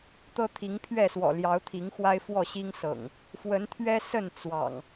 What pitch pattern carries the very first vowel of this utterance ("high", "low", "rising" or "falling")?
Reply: high